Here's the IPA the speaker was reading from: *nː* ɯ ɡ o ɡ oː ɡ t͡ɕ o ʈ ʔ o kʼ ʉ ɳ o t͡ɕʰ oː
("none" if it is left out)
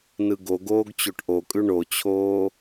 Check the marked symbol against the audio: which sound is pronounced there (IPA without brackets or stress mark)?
n